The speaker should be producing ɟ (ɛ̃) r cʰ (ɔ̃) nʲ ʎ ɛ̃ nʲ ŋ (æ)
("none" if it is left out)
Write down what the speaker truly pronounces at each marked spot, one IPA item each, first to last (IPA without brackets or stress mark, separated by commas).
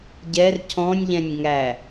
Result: ɛ, ɔ̃, æ